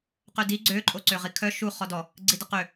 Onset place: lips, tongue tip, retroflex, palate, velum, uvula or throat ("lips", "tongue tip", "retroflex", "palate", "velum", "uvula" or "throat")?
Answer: uvula